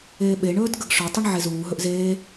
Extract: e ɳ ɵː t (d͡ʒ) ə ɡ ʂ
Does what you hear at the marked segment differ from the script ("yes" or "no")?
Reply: yes